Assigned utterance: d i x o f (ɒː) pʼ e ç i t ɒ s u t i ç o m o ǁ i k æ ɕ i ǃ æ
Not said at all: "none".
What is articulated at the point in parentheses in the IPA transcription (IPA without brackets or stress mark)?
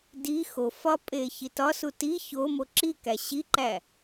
ɒ